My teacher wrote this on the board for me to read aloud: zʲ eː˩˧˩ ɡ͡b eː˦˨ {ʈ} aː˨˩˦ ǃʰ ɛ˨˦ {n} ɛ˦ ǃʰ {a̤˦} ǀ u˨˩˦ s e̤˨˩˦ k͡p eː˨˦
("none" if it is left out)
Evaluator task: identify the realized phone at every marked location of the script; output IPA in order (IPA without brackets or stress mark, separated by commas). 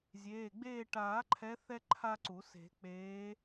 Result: ʈ, θ, a˦